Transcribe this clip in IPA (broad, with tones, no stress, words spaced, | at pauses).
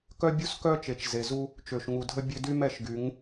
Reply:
kœ˦bʲu˦skœ˦t͡ʃe˨t͡ʃ ze˨zu˦ | t͡ʃø˨ʃŋu˨dʱə˦ bʲø˦ dy˦m ɛ˧ʃɡy˨˦ŋ